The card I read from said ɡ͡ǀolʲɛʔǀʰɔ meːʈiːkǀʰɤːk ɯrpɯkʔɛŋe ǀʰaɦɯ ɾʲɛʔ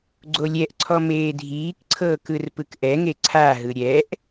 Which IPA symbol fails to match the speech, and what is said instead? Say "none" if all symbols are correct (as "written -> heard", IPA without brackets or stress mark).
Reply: ʈ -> dʱ